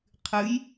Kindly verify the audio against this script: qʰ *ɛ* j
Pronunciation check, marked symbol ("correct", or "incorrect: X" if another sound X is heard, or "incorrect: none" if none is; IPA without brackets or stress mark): incorrect: ɨ